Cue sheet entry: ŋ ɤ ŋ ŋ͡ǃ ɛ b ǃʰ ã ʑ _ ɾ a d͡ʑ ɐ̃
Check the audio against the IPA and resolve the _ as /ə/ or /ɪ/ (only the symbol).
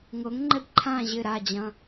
ɪ